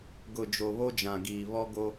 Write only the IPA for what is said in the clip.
ɡʊ˨d͡ʒo˨βo˦ d͡ʒã˨ɡiː˨ βɔ˦ ɡo˦

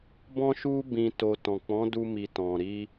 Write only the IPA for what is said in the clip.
bɔ̃˧ʃu˧ bĩ˨to˨ tɔ̃˨k͡pɔ̃˨˦du˧mi˨ tɔ̃˨ɾi˧

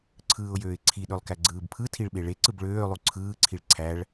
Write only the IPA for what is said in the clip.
ǀʰɯːʊ̯jøːɪ̯ǀʰiɗølˠ kæɡ͡ǀɯːbpʰɯtʰiɭ ɓeɭeǀɯb ɭøːlˠu ǀʰɯːǀʰiɭ ǀʰæɭ

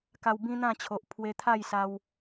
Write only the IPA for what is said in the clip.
ka˧wbĩ˦n̪ã˥˧t͡ɕʰo˨ʔ pʰwe˧t̪ʰa˥˧jsa˧w

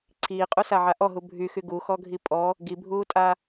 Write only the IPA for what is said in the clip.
ǀʰiːqʼusaʕa ʔɔɦu bʱyxy ɡuxɔɡʱi pʼɔ | ɡibʱuːtʼa

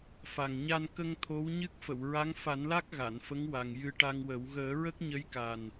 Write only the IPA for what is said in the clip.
fa˨˩ŋɲa˧nkə˧ŋ t̪ʰo˧˥wɲɨ˦˥k̚ fə˨˩˨wɹa˧˥ŋ fa˨˩˦nla˦˥k̚ ɣa˨˩˨nfə˧˥ŋwa˨˩ŋ jɨ˧ʈa˧ŋwə˨˩˦w ɣəː˨˩˦ɹə˦˥k̚ɲə˧˥j ka˨˩n

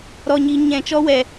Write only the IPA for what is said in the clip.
ɾɔ˨ɲiː˨ɲɛ̃˨ t͡ʃɔ˧wɛ˨

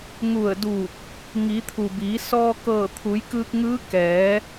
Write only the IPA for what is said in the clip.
ŋu˧˩ə̯duː˧˩k̚ | ŋi˩˧ t̪ʰu˩biː˩˧ sɔː˧kɤː˧˩t̪ʰu˩˧jkɯː˧k̚ ŋɯː˧˥ kɛː˩˧

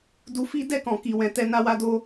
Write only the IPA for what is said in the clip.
du˧fi˦ dɛ˦˨kɔ̃˨ki˨wɛ̃˨ tɛ˧na˦wa˦do˦

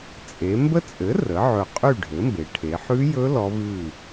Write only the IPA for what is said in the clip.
t͡sʼe˩˧mbə˦˥t͡sʼɘ˩˥ rə˩˥ ʕɵ˨˩qʼy˥˨ ɖʱɘ˩˥mbe˩˧ʈʰe˩˧ ħʉ˦˥jɵ˦˥ lɔ˦˥vʉ˥˨

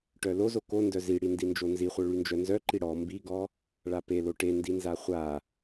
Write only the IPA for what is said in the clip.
ʈœlo zoko ndœziɽi ndind͡ʒonziχʷœ ɭynd͡ʒœnzœǃi ɽɔ mbiɡɔ | ɭapelo ʈendinza χʷa

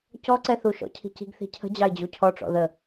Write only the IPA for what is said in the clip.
cɔǀɛθu ʃɔ̰cʰi̤ci̤ɡ θi̤cʰə̤ d͡ʑɑɪ̯d͡ʑucʰɔʈ͡ʂɔ̰ ðə

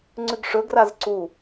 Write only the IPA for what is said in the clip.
ŋ͡ǀʉɡʂɵ ɡrazǀu

